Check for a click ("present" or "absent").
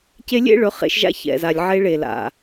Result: absent